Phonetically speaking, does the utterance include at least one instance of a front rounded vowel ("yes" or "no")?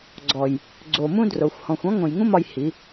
no